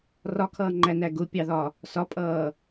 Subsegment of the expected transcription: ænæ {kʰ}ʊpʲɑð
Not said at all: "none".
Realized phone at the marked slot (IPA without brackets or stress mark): ɡ